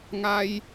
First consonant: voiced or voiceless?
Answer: voiced